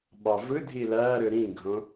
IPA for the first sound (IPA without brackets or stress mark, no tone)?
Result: ɓ